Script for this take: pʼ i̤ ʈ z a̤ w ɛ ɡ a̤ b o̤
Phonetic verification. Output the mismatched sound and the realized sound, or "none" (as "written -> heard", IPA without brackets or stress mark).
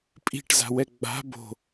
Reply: ɡ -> ɡ͡b